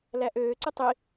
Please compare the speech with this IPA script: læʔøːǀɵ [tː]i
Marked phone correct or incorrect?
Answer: incorrect